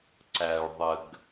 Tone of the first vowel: low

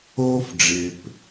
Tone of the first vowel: high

